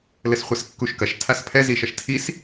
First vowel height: mid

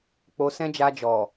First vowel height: mid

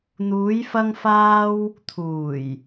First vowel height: high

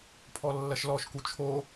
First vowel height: mid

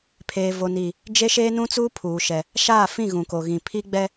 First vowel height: mid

